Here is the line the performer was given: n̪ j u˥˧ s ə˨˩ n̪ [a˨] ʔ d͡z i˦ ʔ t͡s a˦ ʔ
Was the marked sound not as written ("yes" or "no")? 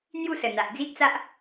no